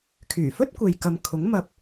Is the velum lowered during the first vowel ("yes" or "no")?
no